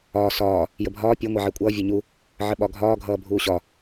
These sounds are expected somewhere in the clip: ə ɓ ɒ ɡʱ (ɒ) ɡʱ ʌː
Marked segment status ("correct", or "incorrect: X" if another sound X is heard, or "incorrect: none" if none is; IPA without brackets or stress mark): incorrect: ɒː